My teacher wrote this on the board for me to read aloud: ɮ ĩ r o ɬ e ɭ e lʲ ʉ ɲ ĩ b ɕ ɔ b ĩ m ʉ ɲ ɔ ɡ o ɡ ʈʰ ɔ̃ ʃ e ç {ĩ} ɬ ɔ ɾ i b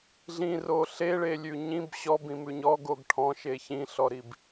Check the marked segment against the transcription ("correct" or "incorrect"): correct